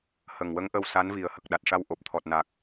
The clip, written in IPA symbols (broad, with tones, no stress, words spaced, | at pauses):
hə˨˩ŋwə˧˥ŋʔə˧w sa˧˥nvi˨˩ə̯hə˨˩k̚ ɗa˨˩t̚ʂa˧wʔo˨˩p̚ t̪ʰɔ˨˩t̚na˨˩k̚